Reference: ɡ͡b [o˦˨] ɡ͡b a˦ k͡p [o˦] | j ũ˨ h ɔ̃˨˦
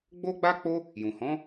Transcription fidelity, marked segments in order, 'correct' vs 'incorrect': incorrect: o˦, correct

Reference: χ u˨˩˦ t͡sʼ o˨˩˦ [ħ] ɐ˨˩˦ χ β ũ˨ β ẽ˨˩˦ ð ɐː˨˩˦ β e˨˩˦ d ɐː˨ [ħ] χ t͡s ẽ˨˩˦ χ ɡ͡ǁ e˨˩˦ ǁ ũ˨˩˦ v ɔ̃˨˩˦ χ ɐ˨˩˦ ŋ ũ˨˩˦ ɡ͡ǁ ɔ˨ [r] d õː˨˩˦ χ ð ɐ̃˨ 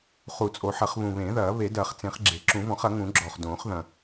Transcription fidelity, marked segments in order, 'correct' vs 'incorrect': correct, incorrect: none, incorrect: χ

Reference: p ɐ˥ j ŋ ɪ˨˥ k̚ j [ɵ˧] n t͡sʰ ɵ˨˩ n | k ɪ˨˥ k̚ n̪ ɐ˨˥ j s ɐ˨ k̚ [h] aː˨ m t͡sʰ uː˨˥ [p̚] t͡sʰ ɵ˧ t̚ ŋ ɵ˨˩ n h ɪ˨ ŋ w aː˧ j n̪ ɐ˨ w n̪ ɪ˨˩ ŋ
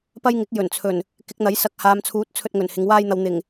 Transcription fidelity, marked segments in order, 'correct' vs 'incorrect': incorrect: ɵ˨˩, correct, incorrect: t̚

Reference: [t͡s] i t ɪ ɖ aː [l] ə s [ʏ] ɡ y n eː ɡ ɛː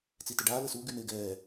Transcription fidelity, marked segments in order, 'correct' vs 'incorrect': correct, correct, incorrect: u

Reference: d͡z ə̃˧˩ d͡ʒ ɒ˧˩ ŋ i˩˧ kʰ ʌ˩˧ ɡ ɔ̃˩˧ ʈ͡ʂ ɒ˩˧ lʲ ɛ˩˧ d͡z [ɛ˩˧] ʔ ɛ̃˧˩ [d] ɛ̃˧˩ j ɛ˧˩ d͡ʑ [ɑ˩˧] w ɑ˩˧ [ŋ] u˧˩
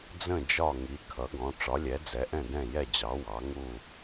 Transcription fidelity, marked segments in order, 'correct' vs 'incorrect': correct, correct, correct, correct

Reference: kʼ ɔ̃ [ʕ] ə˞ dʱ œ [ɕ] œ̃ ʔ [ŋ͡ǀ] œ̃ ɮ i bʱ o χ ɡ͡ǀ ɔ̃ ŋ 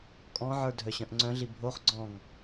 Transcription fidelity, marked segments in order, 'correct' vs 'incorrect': correct, correct, correct

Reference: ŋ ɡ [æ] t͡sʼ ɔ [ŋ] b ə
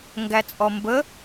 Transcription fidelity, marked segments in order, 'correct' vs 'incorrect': correct, incorrect: m

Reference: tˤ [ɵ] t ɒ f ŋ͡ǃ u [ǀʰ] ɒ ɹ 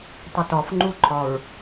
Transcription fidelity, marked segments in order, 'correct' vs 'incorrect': incorrect: ə, incorrect: ǃʰ

